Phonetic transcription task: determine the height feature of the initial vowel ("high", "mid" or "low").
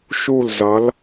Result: high